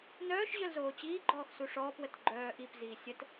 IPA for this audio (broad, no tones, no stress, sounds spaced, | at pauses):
n œː ʃ ʑ œ l z oː t͡ɕ iː ɡ͡ǃ ɔː x s u ʂ ɔː p w ə t ɡ͡ǃ œː ʔ i p z iː sʲ ə t